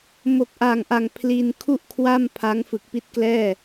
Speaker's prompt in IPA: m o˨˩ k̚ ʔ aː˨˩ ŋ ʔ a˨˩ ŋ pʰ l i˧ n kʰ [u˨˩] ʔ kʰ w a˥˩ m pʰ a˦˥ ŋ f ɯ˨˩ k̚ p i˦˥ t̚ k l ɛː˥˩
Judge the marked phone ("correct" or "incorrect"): incorrect